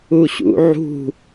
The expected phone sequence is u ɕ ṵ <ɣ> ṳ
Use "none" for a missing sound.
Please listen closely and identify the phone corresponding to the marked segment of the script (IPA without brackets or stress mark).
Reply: ʕ